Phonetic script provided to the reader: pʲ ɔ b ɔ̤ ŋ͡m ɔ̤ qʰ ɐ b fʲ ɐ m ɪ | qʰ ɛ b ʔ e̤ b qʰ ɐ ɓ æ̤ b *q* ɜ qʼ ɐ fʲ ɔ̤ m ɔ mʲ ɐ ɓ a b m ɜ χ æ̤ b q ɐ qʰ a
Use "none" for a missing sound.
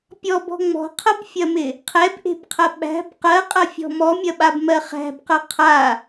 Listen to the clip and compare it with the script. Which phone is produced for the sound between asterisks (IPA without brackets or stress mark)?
q